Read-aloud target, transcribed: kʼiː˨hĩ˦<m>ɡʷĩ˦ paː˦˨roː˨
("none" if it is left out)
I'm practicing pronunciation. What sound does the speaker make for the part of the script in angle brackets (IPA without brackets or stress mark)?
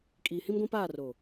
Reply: m